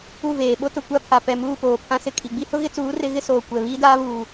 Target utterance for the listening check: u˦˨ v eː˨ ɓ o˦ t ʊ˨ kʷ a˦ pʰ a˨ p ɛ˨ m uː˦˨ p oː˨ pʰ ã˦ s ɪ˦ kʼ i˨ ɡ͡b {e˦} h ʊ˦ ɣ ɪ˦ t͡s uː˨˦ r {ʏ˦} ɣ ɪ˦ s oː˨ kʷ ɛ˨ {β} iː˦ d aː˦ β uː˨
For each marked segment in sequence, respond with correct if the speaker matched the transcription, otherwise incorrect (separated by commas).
incorrect, incorrect, correct